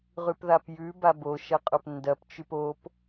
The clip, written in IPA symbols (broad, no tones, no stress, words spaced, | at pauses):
ʁʉpðapjʉ babo ʃɐqʼopndɐpt͡ʃʉp op